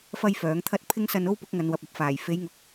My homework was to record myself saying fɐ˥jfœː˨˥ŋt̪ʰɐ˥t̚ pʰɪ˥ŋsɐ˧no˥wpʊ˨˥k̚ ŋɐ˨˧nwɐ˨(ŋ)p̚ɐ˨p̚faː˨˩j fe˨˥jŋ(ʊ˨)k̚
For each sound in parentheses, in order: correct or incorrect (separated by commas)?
incorrect, correct